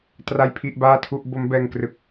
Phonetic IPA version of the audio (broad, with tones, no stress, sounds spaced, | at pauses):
t r a˥˩ j pʰ i˥˩ ʔ b aː˥˩ tʰ u˥˩ ʔ b o˦˥ m b ɛː˧ ŋ k r ɯ˨˩ k̚